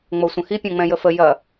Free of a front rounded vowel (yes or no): yes